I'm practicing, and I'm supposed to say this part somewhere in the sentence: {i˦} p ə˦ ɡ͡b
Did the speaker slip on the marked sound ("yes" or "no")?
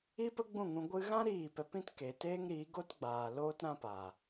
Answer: no